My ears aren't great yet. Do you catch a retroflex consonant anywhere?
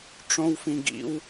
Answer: yes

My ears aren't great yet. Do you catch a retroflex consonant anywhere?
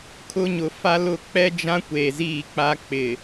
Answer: no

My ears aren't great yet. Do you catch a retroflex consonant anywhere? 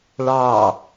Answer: yes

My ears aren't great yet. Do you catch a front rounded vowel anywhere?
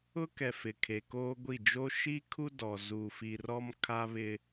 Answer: no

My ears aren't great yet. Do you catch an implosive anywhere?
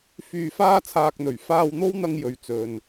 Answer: no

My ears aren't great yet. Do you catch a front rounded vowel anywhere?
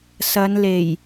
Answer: no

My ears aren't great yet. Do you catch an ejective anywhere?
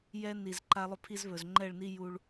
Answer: no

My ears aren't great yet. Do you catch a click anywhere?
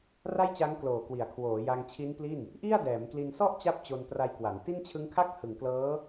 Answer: no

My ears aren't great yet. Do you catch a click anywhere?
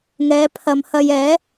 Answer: no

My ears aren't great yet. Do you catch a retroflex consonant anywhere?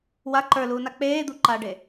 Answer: yes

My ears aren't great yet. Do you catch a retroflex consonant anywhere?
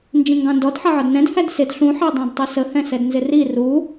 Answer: no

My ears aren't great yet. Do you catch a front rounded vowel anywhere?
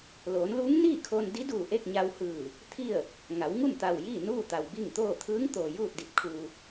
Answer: no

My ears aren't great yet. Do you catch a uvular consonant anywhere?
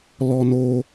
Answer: no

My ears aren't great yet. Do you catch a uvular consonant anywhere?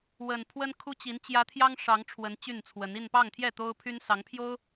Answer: no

